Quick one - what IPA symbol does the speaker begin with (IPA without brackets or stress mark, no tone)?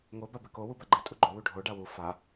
ŋ